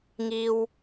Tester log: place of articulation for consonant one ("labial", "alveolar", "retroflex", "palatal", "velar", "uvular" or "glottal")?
velar